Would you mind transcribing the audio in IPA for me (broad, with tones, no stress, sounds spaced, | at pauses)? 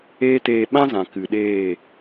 eː˦ t eː˧ ɓ ã˦ z ã˨ k ɨ˨ ɗ eː˦˨